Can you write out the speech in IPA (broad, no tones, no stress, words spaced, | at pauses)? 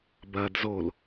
bɐd zol